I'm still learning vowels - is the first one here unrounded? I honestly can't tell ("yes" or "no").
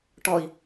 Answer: no